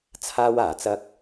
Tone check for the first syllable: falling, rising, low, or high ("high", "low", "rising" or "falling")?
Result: high